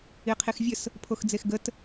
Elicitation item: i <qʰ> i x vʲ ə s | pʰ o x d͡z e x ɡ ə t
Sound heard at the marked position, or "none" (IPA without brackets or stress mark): qʰ